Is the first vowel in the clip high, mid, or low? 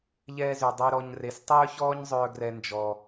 mid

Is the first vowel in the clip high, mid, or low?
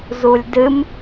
high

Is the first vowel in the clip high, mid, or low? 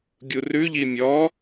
high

